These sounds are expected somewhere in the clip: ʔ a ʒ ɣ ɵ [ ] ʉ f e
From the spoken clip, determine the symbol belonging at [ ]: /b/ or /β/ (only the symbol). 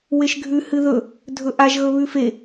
β